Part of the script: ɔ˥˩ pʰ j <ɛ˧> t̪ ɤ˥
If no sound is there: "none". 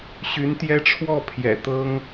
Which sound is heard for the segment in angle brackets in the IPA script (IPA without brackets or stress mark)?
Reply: ɛ̰˨˩